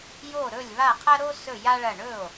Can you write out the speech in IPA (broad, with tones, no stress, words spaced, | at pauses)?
jo˥˩ɾɵ˥˩lʲ βa˥˩qʰɐ˥ɾo˥sɵ˥˩ ja˥ɭɐ˥˩ ɳɵ˥˩o̯